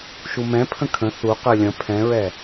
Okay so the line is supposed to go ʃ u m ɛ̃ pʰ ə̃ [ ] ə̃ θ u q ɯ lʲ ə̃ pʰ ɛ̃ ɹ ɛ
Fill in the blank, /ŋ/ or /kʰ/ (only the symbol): kʰ